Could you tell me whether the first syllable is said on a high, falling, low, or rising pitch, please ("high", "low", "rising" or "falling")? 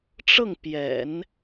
falling